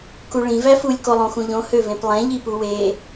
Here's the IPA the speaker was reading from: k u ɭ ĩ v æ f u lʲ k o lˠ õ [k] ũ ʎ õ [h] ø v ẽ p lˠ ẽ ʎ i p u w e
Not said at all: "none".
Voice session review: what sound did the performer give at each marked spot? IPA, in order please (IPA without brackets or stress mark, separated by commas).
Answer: x, h